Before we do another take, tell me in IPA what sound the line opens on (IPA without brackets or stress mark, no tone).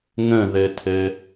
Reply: ŋ